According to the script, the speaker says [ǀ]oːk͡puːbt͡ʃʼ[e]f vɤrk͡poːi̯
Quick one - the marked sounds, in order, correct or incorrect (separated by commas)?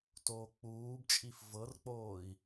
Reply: incorrect, incorrect